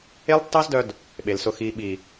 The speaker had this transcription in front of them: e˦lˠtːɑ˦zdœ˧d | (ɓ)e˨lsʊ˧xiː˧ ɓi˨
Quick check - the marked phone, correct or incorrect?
correct